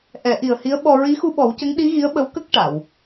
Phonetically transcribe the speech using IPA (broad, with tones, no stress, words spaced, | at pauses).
ʔɛ˨˩˦ʔi˨˩ə̯hi˧˥ə̯ɓɔ˧ ɹi˧˥xu˧ɓɔ˨˩˦wcə˧˥ŋ ɗi˧˥ɣi˧˥ə̯ɓə˧˥w kə˦˥k̚ ʈa˨˩˨w